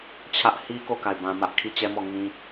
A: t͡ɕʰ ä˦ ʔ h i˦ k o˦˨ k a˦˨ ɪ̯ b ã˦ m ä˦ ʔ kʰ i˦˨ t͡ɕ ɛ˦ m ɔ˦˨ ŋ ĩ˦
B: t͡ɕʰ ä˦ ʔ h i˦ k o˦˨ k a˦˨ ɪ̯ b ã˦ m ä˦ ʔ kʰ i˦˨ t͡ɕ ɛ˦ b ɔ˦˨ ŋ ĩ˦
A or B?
A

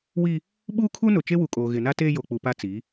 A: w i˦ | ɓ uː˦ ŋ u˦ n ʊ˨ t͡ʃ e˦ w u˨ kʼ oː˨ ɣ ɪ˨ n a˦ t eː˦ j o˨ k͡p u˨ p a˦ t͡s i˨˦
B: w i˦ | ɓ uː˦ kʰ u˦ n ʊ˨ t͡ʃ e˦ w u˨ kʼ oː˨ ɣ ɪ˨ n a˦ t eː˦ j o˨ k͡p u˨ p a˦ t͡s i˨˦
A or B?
B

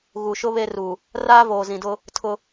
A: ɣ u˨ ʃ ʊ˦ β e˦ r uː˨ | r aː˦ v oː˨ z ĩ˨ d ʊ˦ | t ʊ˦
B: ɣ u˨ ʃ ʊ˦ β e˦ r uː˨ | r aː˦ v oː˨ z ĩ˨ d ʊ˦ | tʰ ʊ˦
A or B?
B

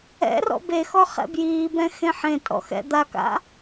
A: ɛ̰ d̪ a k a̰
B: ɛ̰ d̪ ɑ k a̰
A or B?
A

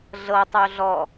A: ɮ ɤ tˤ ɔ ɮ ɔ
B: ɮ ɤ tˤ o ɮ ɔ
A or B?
B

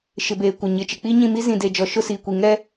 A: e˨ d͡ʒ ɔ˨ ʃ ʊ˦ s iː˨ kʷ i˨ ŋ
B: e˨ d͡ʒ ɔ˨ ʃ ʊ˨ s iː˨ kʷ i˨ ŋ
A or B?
A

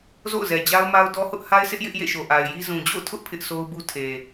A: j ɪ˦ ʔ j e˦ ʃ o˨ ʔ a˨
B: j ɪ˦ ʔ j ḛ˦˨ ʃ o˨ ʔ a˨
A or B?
B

